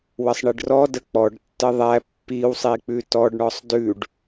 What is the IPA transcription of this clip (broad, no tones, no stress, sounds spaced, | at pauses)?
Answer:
w ə sˤ ɳ i ɖ r ɔ d ə k͡p ɔ ɖ tː ə ðˤ æ pː i w sˤ i k͡p ʉ t ɔ ɖ ɳ ɔ sˤ d ʉ ɖ